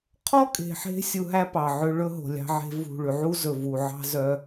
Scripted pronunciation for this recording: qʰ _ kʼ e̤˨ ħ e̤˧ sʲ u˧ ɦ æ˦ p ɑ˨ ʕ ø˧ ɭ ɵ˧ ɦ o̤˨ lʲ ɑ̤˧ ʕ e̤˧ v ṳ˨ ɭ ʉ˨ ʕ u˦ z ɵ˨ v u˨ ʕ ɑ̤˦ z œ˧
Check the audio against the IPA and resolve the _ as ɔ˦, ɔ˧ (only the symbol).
ɔ˦